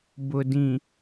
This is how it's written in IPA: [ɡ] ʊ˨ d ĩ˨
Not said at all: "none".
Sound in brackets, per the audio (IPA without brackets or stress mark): b